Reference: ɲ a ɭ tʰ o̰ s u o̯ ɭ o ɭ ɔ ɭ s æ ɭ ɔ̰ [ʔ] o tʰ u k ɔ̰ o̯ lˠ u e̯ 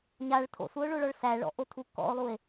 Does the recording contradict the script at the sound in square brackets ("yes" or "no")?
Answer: no